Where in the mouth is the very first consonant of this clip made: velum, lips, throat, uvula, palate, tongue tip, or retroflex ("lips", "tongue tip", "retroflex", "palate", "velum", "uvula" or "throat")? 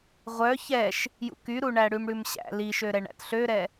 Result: uvula